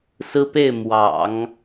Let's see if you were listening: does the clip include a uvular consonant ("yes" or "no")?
no